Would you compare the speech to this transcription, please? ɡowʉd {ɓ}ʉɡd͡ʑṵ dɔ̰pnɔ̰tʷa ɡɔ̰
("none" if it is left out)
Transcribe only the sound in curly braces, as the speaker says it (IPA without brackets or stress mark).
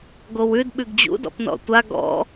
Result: ɓ